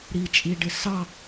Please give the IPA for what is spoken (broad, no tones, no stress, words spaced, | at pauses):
ɾit͡ʃʼiɖɪ sɑ